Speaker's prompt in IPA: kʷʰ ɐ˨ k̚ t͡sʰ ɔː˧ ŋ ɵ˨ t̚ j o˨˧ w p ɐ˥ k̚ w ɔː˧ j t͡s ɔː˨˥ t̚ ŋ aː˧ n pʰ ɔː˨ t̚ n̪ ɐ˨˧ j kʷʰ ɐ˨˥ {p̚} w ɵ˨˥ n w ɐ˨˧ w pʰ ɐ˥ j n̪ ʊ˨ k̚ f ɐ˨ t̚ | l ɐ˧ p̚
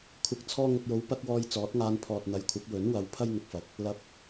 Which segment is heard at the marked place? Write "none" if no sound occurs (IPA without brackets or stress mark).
p̚